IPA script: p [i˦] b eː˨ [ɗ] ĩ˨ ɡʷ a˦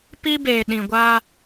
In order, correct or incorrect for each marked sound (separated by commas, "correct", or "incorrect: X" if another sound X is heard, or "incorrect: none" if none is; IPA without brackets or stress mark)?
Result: correct, correct